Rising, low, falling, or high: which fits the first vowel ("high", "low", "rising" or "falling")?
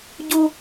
high